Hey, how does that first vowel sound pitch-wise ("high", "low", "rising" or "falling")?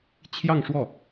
falling